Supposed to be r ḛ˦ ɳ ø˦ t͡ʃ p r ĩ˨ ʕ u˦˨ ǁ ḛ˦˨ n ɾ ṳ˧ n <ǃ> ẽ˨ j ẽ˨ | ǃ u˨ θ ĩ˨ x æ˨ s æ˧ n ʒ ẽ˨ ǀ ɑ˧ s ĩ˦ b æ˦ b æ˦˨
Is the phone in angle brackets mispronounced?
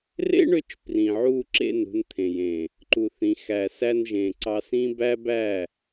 yes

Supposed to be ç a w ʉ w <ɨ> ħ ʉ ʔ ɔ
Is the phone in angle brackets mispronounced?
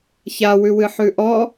no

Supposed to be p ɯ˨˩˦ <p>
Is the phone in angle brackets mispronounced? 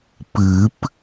no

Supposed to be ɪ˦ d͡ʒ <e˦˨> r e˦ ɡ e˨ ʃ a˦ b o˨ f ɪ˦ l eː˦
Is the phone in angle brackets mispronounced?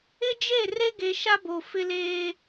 no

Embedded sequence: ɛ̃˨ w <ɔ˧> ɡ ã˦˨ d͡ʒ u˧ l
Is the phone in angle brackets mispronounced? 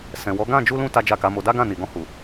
yes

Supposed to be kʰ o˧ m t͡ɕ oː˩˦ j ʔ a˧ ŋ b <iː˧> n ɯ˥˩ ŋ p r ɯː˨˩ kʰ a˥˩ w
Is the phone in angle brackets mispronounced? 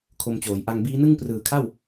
yes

